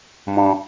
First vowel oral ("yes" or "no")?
no